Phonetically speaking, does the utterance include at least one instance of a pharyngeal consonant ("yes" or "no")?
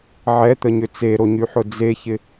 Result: yes